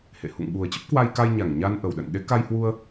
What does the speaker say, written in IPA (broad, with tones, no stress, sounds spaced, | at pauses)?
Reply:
h ḛ˧˨ h ṵ˧˨ ŋ ɓ u˨˩ ə̯ t͡ɕ ə˦˥ p̚ k w a˧ j k a˧ j ɲ a˧˩ ŋ ɲ a˧ n ʔ ə˧˩ w ɗ ə̰˧˨ n ɗ e˨˦ k a˧ j h w u˧ ə̯